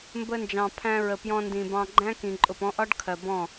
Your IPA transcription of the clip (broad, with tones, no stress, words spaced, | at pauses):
mbə˧nd͡ʒɑ̃˨pʰæ̃˧ɹə˨ pjɔ̃˧ndĩ˨bɑ̃˧ ɡ͡ǃæ̃˦kĩ˨ ǃʼʊ˨pɔ̃˧ʔɒ˦ɖkʰɜ˨ bɔ̃˦˨